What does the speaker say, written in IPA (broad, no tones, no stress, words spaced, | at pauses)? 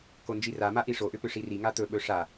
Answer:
kond͡ʒirama ʔiʂoʔʏpʏ ʂiri ŋat̪ɵɓɵ ʂa